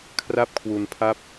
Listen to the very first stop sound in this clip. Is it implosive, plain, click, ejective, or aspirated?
aspirated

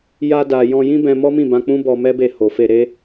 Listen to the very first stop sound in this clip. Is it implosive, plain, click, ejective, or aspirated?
plain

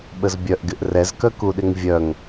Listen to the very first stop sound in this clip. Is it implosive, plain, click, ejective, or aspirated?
implosive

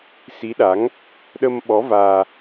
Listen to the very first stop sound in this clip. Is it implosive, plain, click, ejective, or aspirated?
implosive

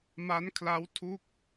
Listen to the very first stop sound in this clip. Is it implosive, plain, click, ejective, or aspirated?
aspirated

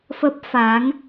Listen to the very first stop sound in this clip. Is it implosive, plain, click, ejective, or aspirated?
plain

